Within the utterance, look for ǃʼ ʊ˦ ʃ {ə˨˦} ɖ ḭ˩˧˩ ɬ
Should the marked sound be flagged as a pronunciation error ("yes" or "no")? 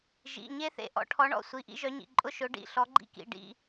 yes